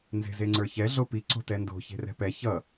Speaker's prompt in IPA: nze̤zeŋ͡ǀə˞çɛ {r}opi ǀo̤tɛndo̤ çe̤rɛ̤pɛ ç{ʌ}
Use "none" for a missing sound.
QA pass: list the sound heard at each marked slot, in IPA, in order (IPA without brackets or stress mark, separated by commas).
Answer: ɮ, ʌ